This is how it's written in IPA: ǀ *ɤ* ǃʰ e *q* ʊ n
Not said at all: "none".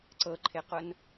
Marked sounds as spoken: ɤ, q

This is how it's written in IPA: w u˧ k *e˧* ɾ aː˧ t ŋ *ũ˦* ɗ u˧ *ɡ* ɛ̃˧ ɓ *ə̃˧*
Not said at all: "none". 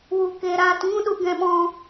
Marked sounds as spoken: e˧, ũ˦, ɡ, ɔ̃˧

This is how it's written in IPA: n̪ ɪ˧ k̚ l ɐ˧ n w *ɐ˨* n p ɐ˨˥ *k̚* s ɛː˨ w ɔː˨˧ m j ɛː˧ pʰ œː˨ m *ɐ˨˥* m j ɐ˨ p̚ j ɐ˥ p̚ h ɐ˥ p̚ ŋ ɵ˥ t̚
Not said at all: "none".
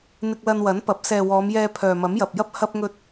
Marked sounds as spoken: ɐ˨˥, p̚, ɐ˨˥

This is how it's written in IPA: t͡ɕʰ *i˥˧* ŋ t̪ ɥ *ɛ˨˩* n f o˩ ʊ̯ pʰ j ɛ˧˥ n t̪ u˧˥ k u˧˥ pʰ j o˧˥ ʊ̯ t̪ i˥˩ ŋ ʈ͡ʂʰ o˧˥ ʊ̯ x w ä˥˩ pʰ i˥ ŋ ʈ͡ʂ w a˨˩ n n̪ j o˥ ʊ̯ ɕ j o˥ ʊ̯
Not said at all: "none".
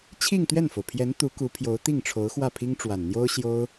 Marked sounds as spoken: i˥˧, ɛ˥˩

